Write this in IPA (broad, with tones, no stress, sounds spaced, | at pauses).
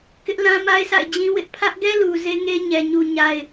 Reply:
k ɪ˦ ʔ l ã˦ m a˦ ɪ̯ sʰ a̰˦˨ ɪ̯ d͡ʑ ĩ˦ w ɪ˦ ʔ pʰ ä˦ ʔ ɡ ɛ˦ l u˨ z e˦ ŋ e˦ ɲ ɛ˨ ɲ u˦ ɲ a˦ ɪ̯